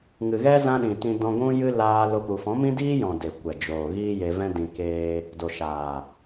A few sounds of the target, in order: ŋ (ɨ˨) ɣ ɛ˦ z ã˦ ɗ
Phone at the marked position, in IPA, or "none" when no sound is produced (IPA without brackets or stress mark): ɨ˨